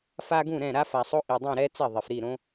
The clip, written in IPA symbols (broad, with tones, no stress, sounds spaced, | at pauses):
f a˦ ɡ ũ˥˩ ɾ ɛ̃˥˩ ɾ a˦ f a˨˩ sˤ o˦ ʔ i˨˩ dˤ ĩ˥˩ ɾ ɛ˦ t͡s ɛ˥˩ ðˤ ɛ˨˩ f ɾ i˥˩ ɾ õ˦